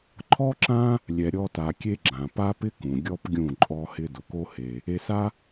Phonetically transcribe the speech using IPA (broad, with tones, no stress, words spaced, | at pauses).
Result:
ǃʰɔ˦ǁã˦ | lʲɛ˨ɾʲɔ˧ta˨ kʲe˦ɡ͡ǁã˨ pa˦pɪ˦kũ˨ ɡʲɔ˦pɡʲũ˦˨ ǃʼɔ˦hɪ˦ dʊ˨ko˦ he˧ | e˧sa˦